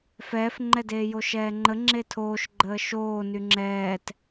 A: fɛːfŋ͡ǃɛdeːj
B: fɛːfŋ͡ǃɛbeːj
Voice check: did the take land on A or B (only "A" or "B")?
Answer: A